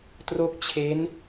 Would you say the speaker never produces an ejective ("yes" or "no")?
yes